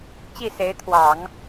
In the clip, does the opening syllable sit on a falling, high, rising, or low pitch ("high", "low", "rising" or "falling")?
falling